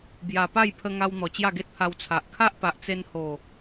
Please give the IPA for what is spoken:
bja˨˩ pa˥˧jpʰə˧ŋa˧w n̪ɔ˨˩t͡ɕja˥˧ɡe˦t̚pʰa˧w t͡sʰa˨ʔ kʰa˦ʔpa˨ʔt͡se˧n ho˨˩

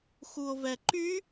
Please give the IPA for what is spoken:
xuo̯vɛǃy

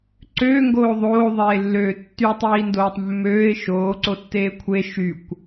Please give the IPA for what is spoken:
ǀøːŋɡoː ðˤoːðˤeːlːøː tːytˤiːndoːtˤ mːøːɪ̯ ʃoːǀotːeː kʷʰe ʃykʷ

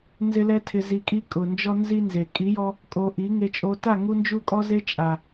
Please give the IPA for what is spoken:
nzɪ˦lɛ˦tʰɪ˧ zi˧kʼi˦kʼʊ˨nd͡ʒɔ˦ nzi˦nze˨ kʼi˨˦jɔ˧ | kʼo˧ ʔi˨˦ŋe˧t͡ʃʼo˧ ta˦˨ ŋu˦nd͡ʒu˦kʼɔ˦ze˦ t͡ʃʼa˨

